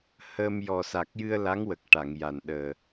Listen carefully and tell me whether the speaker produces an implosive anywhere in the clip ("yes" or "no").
yes